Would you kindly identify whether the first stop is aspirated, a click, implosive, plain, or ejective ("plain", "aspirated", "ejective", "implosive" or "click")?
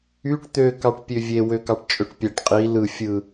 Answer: plain